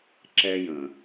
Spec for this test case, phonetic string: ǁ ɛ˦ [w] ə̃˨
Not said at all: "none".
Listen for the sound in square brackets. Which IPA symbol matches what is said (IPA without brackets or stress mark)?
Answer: j